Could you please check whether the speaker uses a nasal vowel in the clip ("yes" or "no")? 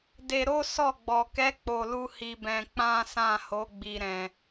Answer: yes